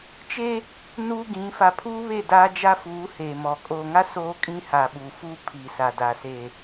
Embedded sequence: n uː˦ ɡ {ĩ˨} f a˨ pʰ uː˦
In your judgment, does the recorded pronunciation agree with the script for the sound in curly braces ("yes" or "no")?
no